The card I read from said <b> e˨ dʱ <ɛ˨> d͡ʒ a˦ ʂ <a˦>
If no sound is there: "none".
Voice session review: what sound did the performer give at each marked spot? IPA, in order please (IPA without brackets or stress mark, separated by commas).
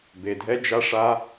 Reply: b, ɛ˦, a˦